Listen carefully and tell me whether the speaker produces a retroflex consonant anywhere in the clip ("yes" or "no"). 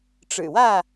yes